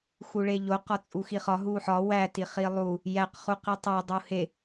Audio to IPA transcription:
x u ɭ e ʎ o q ɒ t͡sʼ u x i χ ɒ ɦ u ħ ɒ w æ t i χ i lˠ u | j æ q χ u q i tˤ æ dˤ u h e

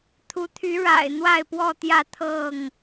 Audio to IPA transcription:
t̪ʰ u˨˦ t̪ʰ y˨˦ ɻ a̰˨˩ ɪ̯ n̪ w a˥˨ ɪ̯ p w ɔ˥˨ t̪ j ä˥˨ t̪ʰ ɤ˥˨ ŋ

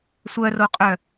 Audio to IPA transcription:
sʷ œ r o qʼ œ

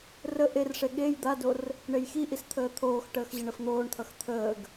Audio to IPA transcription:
r ə ʔ e r ʂ e ɠ e j d̪ a d o r | ɳ e j x i ʔ i s t̪ʰ əː t̪ʰ oː x ʈ əː x ʑ ə ɳ ə f n̪ oː ɳ t̪ʰ ʌ x t̪ʰ əː ɡ

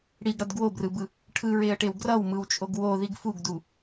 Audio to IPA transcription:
ɽ i ɡ ɽ ʌ d ɡ w o b r ɯ b ɯ | ʈʰ ɯ ɹ e ə̯ ʈ e w ɡ r ʌ w m ɯ w t͡ʃʼ o ɡ w o ð i ɡ f u ɡ d u

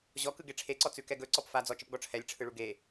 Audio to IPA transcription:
ʑ ɔ k ɯ ɡ e ʈ͡ʂʰ e ǀ ɔ t͡s ʉ k ɛ ɡ ɵ ǀ ɔ p f a d͡z ɔ t͡ʃ ə p ɡ ɔ ʈ͡ʂʰ ɛ lʲ ʈ͡ʂʰ ɯ ɭ u ɡ e

